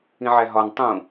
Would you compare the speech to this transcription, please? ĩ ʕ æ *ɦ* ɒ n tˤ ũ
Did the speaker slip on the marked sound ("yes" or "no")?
no